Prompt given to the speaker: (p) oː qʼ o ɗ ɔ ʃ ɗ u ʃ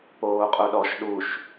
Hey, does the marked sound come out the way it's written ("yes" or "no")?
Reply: yes